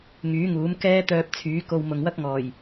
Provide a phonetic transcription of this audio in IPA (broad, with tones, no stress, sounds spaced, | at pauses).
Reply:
ŋ yː˨˥ ŋ uː˨˥ m k ɛː˥ t̪ œː˧ p̚ t͡sʰ yː˨˥ k o˧ w m ʊ˨ ŋ w ɐ˥ k̚ ŋ ɔː˨˩ j